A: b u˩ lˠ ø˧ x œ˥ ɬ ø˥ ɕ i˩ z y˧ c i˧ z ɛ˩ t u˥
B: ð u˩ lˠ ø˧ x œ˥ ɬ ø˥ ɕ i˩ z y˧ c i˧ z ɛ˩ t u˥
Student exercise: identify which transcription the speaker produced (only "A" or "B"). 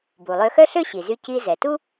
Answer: A